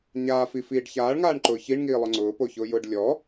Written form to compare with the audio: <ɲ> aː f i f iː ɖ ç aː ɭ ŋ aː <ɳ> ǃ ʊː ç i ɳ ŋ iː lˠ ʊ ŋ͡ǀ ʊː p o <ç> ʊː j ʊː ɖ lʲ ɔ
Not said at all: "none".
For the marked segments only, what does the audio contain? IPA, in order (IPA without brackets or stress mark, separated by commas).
ɲ, ɳ, ç